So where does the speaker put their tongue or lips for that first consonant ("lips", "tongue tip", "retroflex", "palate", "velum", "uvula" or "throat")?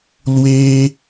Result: tongue tip